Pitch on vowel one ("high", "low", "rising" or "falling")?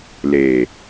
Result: low